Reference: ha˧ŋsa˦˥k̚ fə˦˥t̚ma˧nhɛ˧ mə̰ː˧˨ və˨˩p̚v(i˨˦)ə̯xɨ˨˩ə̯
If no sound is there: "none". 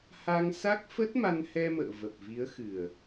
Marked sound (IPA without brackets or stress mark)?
i˨˦